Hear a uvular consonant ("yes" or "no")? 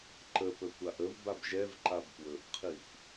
yes